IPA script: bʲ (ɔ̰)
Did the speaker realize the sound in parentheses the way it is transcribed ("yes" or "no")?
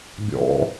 yes